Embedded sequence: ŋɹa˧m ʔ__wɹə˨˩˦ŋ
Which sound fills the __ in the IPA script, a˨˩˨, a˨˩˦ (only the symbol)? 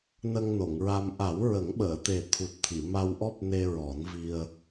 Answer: a˨˩˦